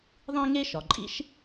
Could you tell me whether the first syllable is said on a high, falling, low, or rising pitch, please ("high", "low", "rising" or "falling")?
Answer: high